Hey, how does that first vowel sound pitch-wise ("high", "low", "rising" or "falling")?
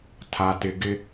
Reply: low